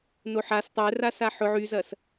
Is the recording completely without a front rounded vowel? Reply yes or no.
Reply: no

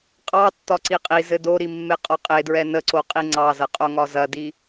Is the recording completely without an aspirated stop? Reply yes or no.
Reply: yes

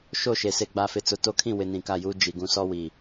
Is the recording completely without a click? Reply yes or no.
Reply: yes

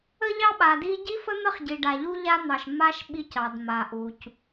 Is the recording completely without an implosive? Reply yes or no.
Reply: no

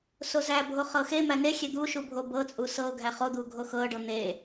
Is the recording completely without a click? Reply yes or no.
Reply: yes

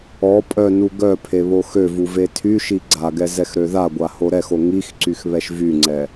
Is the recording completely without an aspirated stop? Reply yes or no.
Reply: no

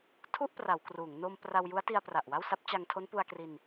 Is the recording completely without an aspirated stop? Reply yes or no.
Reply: no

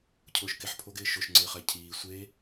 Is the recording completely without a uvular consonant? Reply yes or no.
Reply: no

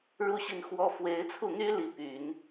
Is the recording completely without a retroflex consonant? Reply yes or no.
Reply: no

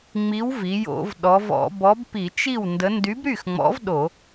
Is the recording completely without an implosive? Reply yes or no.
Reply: no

